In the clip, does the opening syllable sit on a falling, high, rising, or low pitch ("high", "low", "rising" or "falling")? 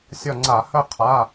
falling